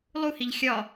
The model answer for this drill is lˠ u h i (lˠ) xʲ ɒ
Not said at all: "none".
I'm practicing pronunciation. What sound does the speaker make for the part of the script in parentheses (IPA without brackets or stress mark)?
ʎ